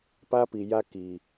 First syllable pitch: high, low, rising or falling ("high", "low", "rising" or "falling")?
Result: high